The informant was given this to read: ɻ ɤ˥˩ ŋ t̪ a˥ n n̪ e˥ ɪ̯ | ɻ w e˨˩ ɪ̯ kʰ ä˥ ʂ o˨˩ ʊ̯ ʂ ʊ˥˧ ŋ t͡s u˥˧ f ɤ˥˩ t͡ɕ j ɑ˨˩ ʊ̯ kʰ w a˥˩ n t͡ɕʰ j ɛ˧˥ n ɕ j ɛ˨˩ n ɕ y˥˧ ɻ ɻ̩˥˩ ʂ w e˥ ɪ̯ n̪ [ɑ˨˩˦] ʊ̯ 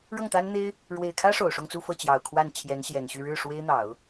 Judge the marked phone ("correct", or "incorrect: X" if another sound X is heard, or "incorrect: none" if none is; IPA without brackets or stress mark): correct